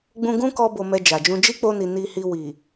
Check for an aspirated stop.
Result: absent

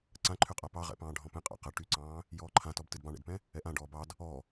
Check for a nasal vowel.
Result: present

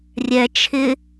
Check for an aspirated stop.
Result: present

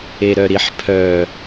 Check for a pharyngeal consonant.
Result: present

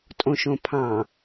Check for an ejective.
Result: present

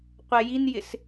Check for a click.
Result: absent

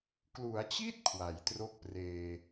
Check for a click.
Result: absent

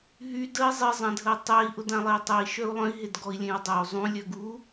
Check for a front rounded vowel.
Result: present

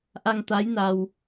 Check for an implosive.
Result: absent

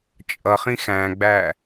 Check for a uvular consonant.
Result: present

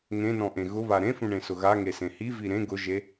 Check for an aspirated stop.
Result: absent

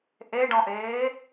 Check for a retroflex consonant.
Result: present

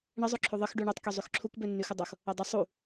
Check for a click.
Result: present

